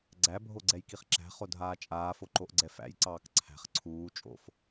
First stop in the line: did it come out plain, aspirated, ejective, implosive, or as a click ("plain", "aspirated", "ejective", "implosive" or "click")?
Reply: click